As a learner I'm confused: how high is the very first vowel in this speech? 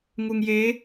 high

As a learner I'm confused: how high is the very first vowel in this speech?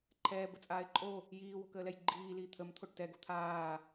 mid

